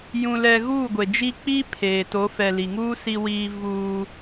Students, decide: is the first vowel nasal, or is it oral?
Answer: nasal